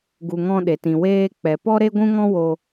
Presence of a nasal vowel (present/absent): present